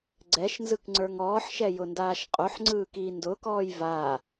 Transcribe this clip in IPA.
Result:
ɡ͡ǀ ɛ ʃ n z ɯ k ŋ͡ǀ ə˞ ŋ ɔː ħ ʃ ɛ j ʊ n d aː ʃ qʼ o ħ ŋ͡ǀ ɯː k iː n d ʊ k ɔː j v aː

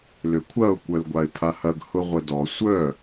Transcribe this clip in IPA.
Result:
l ʏ kʷʰ ɐ ʊ̯ kʷ œ l ɡʷ a ɪ̯ pʰ a h ɐ ɡ h ʊ ʁʷ ə d ɔ sʷ œ

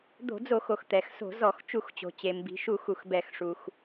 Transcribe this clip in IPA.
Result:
d̪ o̤˧˩˧ d͡z o˧˩˧ x o˩ x t̪ ɛ˩ x s o̤˧˩˧ z ɔ˧˩˧ x t͡ʃ u˧˩˧ x t͡ɕ o̤˩ t͡ɕ e˩ m b i̤˩ ʃ u˧˩˧ x u˩ x b ɛ˧˩˧ x ʂ u˩ x

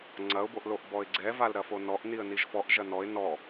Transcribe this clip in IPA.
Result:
ŋ͡ǀ ɐ ʊ̯ b o ʔ l o ʔ b ɔ ɪ̯ ɡ͡ǀ ɛ v a l ɾ ɐ f o n ɔ ʔ n i ə̯ n i ʒ f ɔ ʔ ʒ ɐ n ɔ ɪ̯ n ɔ

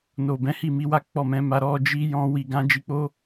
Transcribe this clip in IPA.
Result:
n o˨ b ɛ̃˨˦ h i˦˨ m i˨˦ w a˦ k͡p ɔ˦˨ m ɛ̃˨˦ m a˧ ɾ ɔ˧ d͡ʒ i˧ j ɔ̃˧ w i˨ ɡ ã˨˦ d͡ʒ i˧ k͡p o˦

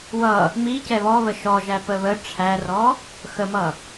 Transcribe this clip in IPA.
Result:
w ʌ | m i c ɛ β ɔ β ə ʃ ɔ ʒ æ p ə β ə ʈ͡ʂʰ æ r ɔ | x ə m ʌ

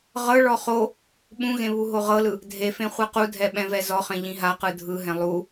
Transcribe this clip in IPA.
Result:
ʁ ɤ ɭ ɔ χ o | ɓ ũ ɣ ẽ β u ɦ o ʁ ɤ l ɯ | dʱ e f ẽ χʷ ɯ q u dʱ ɛ ɓ ɛ̃ v ɛ z ɔ χ ẽ ʎ ĩ ɦ a q ɯ dʱ ɯ ɦ ɛ̃ lˠ u

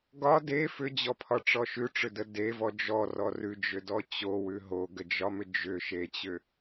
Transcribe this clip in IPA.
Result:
ɡ ɒ d e f ʏ d͡ʑ ɔ pʰ ɒ ʈ͡ʂ ɔ ʃ ʉ ʈ͡ʂ ʏ d ə d e v ɔ d͡ʒ ɔ r ɔ r ʉ d͡ʒ ʏ d ɔ t͡ɕ o w ʉ ɦ o ɡ ə d͡ʒ ɒ m ʏ d͡ʒ ʏ ʃ e t͡ɕ ʏ

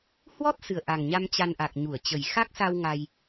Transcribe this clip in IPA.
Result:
h w ɔ˦˥ t̚ s ɨ˨˩ ə̯ ʔ a˨˩ ŋ ɲ a˧ m t͡ɕ a˧ n ʔ a˨˩ k̚ ɲ u˧˩ ə̯ t͡ɕ ə˨˩ j x a˦˥ k̚ s a˧ w ŋ a˧ j

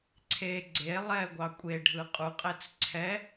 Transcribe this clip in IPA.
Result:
ǀʰ e ɡ͡ǀ e lˠ ɛ ɡʷ ɑ kʷʼ e ɖʱ ɯ qʼ u qʼ ɛ t͡s ǀʰ ɛ

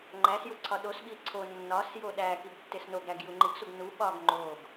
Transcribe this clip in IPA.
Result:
ŋ͡ǃ æ s j u ǀʰ ɒ ɗ o s ɓ i ǀʰ o nː ɒ s j o ɗ æ k i ɡ tː e s n o ɡ ɾ æ ɡ j u ŋ͡ǃ i ɡ s u ɡ n u ɓ ɒ ɡ ŋ͡ǃ o ɡ

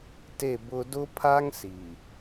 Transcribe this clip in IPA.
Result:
t e˦˨ b ʊ˦ d ʊ˦ pʰ a˦ ŋ s i˨

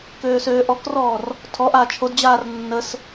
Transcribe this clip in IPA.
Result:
k øː s øː ʔ ɔ k r ɔː r | tʰ ɔ ʔ aː t͡ʃʰ o d d͡ʑ aː r nː ə s

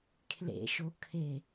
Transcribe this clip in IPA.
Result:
kʰ l ḛ ʃ o kʰ e

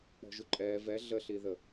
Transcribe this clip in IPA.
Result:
k͡p ɔ̤ ʒ u ǃʼ ɛː v ɛ ɮ ə ɬ i ð ə

